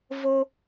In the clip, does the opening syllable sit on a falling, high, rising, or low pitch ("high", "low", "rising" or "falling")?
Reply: high